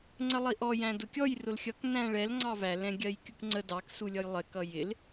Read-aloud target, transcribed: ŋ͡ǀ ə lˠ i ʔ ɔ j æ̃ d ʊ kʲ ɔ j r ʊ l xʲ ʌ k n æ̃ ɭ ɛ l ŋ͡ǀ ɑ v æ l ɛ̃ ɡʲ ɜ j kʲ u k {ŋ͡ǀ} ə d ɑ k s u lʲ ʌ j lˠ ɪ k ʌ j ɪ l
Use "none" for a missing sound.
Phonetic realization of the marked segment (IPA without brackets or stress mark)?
ŋ͡ǀ